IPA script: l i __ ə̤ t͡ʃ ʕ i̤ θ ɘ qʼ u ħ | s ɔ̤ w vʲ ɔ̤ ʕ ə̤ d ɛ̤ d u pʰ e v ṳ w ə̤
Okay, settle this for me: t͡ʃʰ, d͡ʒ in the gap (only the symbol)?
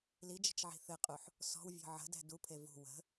d͡ʒ